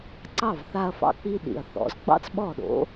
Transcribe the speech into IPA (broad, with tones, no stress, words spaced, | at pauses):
ǀɑ˥˩vθa˧ɐ̯fɑ̰˧k͡pi˧ ɗḭ˩ɐ̯ θɔ̰˩˥z ɡ͡bɑ̰˥t͡sɓɔ˥˩ɗo̰˩˥